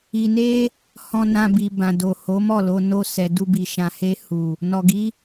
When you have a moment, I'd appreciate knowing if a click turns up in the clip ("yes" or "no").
no